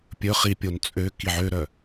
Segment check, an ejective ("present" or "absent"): present